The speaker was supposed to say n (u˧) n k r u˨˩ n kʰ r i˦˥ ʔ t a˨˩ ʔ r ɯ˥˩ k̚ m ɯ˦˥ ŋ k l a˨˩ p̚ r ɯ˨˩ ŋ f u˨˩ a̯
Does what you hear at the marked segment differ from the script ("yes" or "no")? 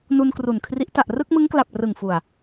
no